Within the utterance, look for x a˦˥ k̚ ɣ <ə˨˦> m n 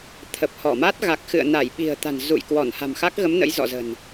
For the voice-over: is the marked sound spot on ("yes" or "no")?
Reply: yes